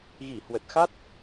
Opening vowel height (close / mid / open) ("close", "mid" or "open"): close